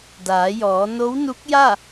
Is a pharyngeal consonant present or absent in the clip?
absent